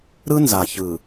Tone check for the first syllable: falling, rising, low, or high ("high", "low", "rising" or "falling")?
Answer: high